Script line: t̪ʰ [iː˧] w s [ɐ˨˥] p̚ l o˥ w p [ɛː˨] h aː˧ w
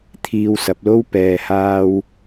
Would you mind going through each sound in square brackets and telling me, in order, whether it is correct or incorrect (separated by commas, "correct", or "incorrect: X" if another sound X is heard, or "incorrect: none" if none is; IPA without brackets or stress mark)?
correct, correct, correct